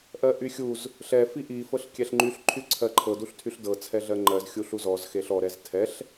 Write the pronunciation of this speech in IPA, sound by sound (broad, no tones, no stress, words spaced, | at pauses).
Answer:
ʔɜʔyxʲuz | ɬɛ fiʔi fɤɬkʲɛɬŋ͡ǃyɬ ǃʰyǀʰɜǃʰɤ duɬtʰyɬdɤ t͡sʰɛɮɜŋ͡ǃɜz xʲuɬuzɔz xeɬɔ ɾɛztʰɛɬ